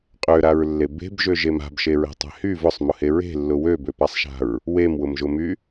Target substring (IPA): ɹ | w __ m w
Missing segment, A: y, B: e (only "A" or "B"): B